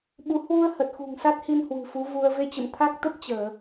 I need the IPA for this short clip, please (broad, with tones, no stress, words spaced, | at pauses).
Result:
ɓu˨˦ hwu˧ə̯ hə˨˩t̚xṳ˨˩ŋsa˦˥t̚hi˧n hwɨ̤˨˩fu˨˦vu˧ə̯ ve˧t͡ɕə̰˧˨mt̪ʰa˦˥k̚t̪ə˦˥p̚ t͡ɕəː˧˩˨